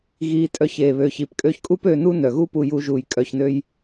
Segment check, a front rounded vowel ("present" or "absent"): present